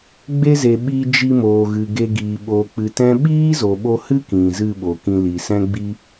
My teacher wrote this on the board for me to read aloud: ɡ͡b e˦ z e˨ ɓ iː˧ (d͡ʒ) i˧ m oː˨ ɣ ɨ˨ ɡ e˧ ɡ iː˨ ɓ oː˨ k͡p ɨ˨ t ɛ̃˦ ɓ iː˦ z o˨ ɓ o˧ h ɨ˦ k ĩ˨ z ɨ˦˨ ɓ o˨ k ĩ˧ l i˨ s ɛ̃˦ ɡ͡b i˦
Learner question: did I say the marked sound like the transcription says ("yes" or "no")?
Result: yes